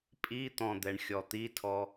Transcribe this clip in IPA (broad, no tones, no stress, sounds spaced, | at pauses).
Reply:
pʼ i t̪ ɔ̃ d̪ ɛ ɳ xʲ ɔ t̪ i tʰ ɔ